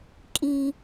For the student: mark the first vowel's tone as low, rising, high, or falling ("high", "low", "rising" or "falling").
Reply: high